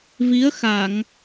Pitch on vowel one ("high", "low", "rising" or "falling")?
rising